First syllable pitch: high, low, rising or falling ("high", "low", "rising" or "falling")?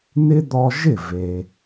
high